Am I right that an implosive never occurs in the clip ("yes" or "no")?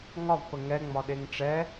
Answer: no